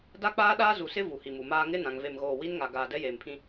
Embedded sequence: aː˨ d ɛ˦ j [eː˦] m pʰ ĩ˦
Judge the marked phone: incorrect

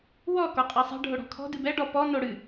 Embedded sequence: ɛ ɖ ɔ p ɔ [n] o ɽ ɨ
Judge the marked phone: correct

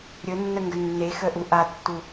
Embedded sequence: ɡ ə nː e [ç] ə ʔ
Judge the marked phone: incorrect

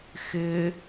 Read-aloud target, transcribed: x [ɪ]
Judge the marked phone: correct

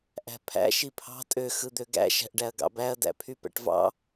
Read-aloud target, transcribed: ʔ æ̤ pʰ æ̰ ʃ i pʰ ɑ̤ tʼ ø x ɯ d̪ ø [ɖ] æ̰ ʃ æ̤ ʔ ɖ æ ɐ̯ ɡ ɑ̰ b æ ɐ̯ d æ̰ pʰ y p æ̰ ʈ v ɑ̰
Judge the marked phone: incorrect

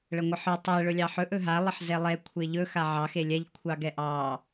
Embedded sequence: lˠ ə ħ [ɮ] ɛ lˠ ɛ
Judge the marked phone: incorrect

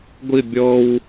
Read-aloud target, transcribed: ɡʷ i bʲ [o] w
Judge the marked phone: incorrect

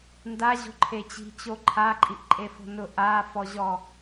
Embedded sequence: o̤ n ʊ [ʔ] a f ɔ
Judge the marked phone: correct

